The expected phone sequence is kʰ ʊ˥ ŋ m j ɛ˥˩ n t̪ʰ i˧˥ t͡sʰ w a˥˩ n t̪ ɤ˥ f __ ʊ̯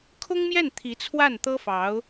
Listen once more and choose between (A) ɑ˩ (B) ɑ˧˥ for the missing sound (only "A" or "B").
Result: B